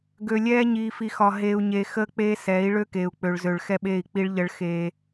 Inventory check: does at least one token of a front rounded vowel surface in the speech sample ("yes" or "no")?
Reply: yes